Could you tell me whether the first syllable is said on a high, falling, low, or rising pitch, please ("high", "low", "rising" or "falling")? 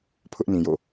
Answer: high